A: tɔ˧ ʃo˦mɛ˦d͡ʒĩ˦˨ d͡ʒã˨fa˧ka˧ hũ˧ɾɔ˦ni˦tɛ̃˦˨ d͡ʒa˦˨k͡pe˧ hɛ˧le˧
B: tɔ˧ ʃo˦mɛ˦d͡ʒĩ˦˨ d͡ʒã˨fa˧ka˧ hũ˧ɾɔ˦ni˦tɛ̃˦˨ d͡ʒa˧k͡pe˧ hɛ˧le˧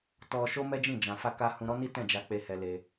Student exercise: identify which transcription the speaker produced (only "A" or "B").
B